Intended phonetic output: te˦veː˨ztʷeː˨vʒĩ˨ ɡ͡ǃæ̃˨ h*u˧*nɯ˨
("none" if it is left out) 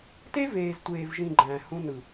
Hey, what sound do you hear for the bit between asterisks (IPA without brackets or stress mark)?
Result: ũ˧